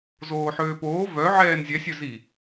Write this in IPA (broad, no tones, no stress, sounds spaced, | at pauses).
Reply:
z oː ħ øː p oː v œ ʕ ɛː n zʲ ɛ sʲ œ z i